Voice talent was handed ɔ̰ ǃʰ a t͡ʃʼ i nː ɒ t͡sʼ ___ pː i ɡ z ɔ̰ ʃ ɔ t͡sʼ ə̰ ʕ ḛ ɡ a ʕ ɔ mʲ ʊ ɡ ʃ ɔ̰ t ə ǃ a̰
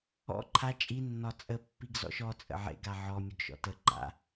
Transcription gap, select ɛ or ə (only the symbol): ə